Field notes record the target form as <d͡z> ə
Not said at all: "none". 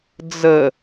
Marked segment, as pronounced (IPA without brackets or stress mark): d͡z